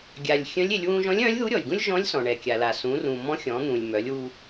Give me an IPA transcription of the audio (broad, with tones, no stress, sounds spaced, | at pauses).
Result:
ɡʲ a˩ lʲ xʲ œ̃˧˥ lʲ e˩˧ lʲ w ũ˧ ʒ ɔ̃˧˥ lʲ œ̃˧˥ lʲ ð u˧˥ ɾʲ ɔ˩ lʲ ɡ ũ˥ lʲ ʒ ɔ̃˧˥ lʲ s ɔ̃˩ ɳ ɛ˩ kʲ a˩ l a˩ s ũ˩˧ r ũ˩ m ɔ̃˧˥ xʲ ɔ̃˩˧ n̪ ũ˩ lʲ m œ˩˧ lʲ w u˧